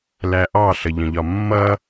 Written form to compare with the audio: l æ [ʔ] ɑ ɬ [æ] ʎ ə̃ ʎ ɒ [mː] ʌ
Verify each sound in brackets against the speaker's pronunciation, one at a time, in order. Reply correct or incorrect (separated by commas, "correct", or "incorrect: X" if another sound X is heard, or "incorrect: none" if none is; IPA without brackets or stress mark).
correct, incorrect: ə, correct